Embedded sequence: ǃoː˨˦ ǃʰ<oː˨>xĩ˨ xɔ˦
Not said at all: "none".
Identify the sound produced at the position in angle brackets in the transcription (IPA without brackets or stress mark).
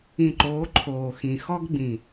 oː˨